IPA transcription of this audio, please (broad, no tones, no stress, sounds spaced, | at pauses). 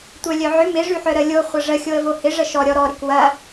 tʷ œ lʲ œ ʕ ʏ m ɪ ʐ y ħ œ ɾ ə lʲ o χʷ ɐ ʐ ə xʲ o ə̯ v o h ɪ ʐ ə ʃ ɔ ɾʲ ɔ ɾ ɔ ɾ ɪ k w ɐ